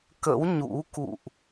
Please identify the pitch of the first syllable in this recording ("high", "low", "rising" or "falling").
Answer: rising